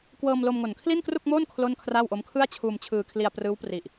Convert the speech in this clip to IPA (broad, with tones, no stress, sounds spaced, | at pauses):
k w ɤː˧ m l o˧ m ŋ o˨˩ n kʰ l i˥˩ n k r u˥˩ k̚ m oː˥˩ n kʰ l o˥˩ n kʰ r a˥˩ w ʔ o˦˥ m kʰ ɯ˥˩ a̯ t͡ɕʰ uː˧ m t͡ɕʰ ɯː˧ kʰ l i˧ a̯ p r ɯː˦˥ w p r i˨˩ ʔ